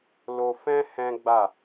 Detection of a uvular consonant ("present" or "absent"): absent